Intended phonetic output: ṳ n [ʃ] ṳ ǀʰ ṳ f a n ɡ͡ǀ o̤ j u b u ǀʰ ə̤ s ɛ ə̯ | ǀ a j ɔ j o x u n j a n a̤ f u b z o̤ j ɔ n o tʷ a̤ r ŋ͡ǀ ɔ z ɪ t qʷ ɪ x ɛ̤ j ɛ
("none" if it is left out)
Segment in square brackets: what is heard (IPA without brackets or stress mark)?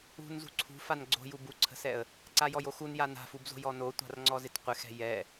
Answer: z